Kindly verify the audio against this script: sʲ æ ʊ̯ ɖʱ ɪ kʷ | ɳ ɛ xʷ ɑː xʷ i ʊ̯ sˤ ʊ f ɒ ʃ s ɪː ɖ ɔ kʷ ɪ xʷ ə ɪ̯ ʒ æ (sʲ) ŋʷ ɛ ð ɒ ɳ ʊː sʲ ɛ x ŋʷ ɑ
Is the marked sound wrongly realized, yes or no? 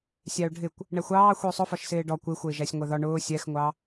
no